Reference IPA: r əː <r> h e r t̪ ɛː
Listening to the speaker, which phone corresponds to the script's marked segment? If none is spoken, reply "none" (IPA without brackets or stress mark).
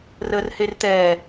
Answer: r